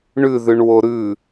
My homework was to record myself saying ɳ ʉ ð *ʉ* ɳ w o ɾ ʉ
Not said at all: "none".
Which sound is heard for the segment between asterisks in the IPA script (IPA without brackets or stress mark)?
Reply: ʉ